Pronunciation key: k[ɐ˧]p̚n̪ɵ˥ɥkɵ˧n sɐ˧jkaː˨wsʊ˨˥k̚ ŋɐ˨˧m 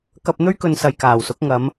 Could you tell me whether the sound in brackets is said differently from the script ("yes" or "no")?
no